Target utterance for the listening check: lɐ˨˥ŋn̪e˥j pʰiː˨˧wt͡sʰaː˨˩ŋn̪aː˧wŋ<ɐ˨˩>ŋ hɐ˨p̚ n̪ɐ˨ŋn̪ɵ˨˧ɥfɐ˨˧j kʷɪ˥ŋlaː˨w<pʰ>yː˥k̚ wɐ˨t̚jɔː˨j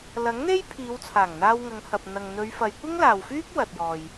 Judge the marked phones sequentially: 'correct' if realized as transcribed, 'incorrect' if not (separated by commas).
incorrect, incorrect